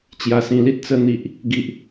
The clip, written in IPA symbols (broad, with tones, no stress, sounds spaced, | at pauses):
t͡ɕ j a˨˩ s ĩ˨˩ l i˦ t̚ t͡s ə˧ n̪ i˨ ʔ | ɡ i˨ ʔ